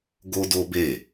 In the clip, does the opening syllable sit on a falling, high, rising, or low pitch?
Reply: high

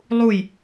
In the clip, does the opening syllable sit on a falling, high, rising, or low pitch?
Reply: falling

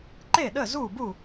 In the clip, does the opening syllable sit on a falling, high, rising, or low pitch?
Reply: falling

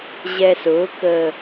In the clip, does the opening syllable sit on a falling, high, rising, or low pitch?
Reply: low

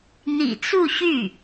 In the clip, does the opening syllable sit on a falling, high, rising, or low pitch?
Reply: low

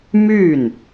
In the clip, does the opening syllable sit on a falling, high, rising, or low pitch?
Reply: falling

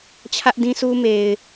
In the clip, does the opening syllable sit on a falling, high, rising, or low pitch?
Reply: high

